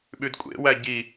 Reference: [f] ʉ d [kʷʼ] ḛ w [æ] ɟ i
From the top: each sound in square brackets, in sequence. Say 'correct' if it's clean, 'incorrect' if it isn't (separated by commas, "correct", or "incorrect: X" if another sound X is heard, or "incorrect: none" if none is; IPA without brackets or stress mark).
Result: incorrect: ɓ, correct, correct